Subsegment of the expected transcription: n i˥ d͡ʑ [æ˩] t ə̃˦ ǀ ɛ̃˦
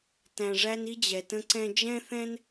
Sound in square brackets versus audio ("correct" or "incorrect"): incorrect